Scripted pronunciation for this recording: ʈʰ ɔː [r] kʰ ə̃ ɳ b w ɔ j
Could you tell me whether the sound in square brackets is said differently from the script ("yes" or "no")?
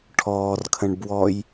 no